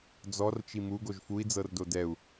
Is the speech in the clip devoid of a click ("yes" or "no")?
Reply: yes